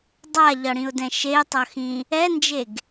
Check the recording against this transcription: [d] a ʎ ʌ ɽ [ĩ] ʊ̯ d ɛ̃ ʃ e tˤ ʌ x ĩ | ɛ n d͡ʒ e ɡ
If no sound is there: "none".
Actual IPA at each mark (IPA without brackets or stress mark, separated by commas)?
dˤ, ĩ